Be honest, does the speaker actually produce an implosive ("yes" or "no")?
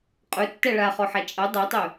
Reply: no